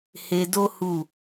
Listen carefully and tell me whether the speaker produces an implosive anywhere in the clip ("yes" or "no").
no